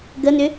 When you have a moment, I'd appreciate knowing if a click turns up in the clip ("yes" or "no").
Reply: no